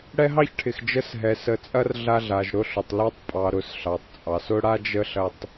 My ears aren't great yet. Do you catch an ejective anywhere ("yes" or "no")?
yes